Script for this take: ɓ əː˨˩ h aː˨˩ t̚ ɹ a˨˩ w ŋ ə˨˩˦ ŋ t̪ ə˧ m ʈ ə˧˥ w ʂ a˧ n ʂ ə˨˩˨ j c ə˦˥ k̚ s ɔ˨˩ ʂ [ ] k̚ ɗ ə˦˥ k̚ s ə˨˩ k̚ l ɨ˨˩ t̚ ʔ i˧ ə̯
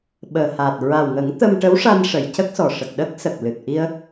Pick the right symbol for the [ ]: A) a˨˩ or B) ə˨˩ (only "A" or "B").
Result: B